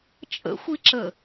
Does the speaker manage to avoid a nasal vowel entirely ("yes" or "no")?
yes